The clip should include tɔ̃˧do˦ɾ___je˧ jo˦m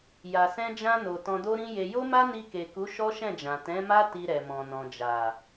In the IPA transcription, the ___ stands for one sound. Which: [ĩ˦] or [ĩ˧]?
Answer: ĩ˦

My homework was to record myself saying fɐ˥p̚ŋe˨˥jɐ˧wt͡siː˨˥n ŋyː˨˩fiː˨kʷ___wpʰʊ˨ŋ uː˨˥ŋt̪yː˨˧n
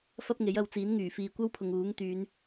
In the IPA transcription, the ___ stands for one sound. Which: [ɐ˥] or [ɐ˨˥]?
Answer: ɐ˥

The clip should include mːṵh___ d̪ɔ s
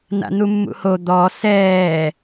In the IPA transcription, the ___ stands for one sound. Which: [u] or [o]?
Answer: o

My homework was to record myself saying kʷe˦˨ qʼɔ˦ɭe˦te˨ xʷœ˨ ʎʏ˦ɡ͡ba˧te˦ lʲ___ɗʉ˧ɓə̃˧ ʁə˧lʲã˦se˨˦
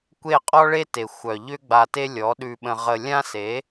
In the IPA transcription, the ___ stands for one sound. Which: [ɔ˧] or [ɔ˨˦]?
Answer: ɔ˨˦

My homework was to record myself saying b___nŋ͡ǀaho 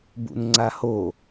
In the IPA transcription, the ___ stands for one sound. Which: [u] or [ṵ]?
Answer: ṵ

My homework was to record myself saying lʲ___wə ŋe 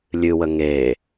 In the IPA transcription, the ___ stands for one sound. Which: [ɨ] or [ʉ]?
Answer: ɨ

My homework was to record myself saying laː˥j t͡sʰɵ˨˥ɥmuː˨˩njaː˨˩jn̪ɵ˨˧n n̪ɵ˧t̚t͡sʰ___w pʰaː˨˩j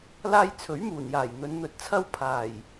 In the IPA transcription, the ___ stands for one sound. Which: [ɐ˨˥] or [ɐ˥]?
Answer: ɐ˥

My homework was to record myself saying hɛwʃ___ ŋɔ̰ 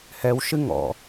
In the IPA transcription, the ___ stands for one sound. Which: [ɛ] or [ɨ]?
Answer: ɨ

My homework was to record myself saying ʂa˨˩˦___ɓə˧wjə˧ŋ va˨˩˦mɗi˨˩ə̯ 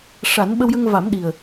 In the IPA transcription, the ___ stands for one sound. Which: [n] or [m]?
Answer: n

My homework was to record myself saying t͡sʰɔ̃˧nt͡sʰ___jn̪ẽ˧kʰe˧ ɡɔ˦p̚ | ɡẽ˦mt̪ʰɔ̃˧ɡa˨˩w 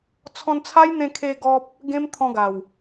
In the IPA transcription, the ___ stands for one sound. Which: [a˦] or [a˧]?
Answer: a˦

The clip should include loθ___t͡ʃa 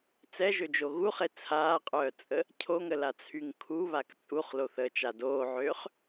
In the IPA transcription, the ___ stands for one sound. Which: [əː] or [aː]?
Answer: əː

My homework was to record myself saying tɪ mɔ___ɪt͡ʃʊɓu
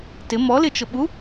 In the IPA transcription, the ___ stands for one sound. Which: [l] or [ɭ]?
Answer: l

